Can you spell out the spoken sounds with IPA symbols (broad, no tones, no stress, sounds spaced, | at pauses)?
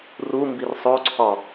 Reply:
r u m b i r sˤ o ǀʰ ɒ